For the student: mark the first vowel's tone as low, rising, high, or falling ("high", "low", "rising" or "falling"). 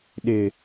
low